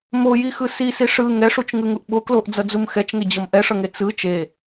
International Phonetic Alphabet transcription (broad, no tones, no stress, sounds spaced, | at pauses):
m o j i x ɯ s i s i ʂ ɯ ŋ ɛ ʂ u t͡ʃ ŋ ɯ ŋ u ʔ ɓ o k l o ʔ d͡z ʌ d͡z u m x ɛ t͡ʃ ŋ e d͡ʑ ʌ m ʔ ɛ ʂ ʌ ŋ e t͡s ɯ t͡ʃ e